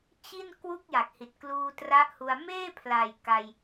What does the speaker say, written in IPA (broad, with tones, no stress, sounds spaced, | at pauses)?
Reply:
t͡ɕ i˥˩ n k w u˥˩ k̚ j a˨˩ k̚ h i˨˩ t̚ k l uː˧ t r a˦˥ ʔ h u˧ a̯ m eː˥˩ pʰ l a˨˩ j k a˧ j